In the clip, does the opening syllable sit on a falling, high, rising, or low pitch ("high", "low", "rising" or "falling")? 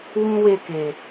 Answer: high